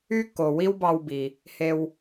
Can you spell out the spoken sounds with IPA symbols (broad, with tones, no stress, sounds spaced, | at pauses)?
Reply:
y˥ kː o˩ w i˥ w b ɑ˧ w b i˩ | h e˧ w